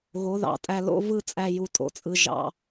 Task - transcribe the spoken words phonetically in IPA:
ɣo˨˦ðɑ̰˨tʼæ˧ lo̰˦vɯ˦t͡sʼæ˧ ju˨tʼo̰˨ t͡sʼɯ˨ʒɑ̰˨

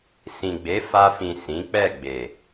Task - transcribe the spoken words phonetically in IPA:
sĩ˨ɡ͡be˨˦ fa˧fĩ˨ sĩ˨˦k͡pɛ˦˨ɡ͡be˨

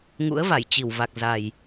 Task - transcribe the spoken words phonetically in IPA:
ŋṵ˧˥ə̯va˧˩jt͡ɕi˧˩wva˨˩k̚ za˨˩j

